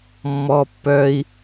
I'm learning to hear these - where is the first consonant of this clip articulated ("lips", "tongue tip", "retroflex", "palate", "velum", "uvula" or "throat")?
lips